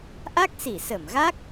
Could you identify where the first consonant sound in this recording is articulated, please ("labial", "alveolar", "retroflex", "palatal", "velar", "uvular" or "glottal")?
glottal